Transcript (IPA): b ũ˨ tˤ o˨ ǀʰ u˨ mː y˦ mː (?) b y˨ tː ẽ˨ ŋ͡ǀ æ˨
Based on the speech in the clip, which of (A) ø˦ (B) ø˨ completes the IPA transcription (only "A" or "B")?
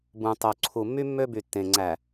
A